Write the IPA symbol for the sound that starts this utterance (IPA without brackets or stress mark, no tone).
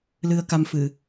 l